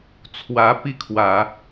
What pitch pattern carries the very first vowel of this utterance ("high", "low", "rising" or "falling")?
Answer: rising